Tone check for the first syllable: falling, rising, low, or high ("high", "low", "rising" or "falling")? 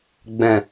low